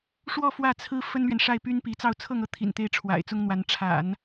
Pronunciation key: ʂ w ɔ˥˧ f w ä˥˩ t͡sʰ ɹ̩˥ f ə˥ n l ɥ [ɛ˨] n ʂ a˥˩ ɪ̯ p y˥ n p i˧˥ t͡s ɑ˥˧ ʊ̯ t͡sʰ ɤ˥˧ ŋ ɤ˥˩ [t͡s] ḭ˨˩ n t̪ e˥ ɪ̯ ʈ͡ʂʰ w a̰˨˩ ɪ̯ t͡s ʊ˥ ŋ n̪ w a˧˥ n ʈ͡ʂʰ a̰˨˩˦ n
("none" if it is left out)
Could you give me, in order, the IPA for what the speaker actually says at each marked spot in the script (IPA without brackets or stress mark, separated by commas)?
ɛ˨, t̪ʰ